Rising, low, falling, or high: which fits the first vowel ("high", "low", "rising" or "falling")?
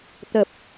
low